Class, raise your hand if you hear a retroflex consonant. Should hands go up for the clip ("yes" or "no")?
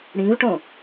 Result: yes